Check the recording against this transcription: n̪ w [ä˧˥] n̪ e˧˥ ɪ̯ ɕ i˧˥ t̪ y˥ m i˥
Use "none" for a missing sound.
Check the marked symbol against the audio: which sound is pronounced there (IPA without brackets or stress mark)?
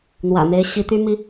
ä̰˨˩